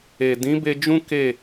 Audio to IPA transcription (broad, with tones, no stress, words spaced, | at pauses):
e˨ dĩ˨˦be˧d͡ʒũ˦ ke˦˨